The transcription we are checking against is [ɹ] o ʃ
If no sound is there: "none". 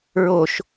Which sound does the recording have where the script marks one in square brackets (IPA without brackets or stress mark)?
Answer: ɹ